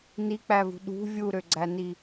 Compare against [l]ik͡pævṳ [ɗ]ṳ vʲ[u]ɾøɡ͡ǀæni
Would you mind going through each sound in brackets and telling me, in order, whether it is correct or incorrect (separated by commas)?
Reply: incorrect, correct, correct